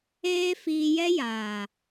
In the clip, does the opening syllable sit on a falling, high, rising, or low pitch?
high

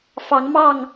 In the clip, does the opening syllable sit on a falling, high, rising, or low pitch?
rising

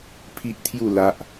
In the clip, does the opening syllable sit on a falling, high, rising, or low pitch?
high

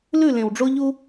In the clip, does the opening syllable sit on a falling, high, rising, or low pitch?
falling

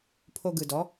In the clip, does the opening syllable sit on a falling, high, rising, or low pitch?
high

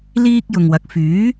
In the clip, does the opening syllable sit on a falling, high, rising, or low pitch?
high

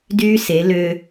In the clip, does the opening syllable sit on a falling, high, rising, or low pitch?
high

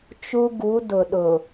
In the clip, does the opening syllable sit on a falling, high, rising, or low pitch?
high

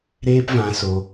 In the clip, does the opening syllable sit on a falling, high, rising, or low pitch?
high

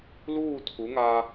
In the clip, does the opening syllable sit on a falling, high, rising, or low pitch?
falling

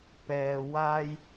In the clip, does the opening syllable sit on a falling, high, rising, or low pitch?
low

